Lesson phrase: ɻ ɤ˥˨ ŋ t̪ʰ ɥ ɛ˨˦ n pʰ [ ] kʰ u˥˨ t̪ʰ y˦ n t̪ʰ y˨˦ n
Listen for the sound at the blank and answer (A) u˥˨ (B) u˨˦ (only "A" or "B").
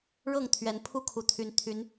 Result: A